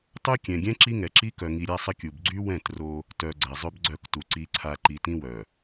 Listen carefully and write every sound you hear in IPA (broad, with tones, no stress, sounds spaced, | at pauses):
tˤ ø˦ kʲ ɛ̃˨ ɡʲ ɛ̃˦ ǁ i˦ ŋ ɛ˨ ǁ i˦ k œ˨ ŋ i˨ ɾʲ a˦ sˤ ə˦ kʲ u˨ b ɡ͡ǀ y˦ w ɛ̃˦˨ t r o˦ | t œ˨ ɡ͡ǀ ɛ˨ zˤ ø˦ b ɡ͡ǀ œ˦˨ k t u˨ ǀ i˨ ǀʰ a˨ ǃ i˨ t ĩ˦ w œ˨